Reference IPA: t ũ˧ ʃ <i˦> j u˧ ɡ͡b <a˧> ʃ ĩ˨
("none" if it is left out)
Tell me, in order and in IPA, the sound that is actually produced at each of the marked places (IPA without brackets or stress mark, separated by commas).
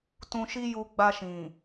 i˦, a˧